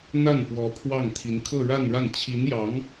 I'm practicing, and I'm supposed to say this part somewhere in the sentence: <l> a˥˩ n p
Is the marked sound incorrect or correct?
incorrect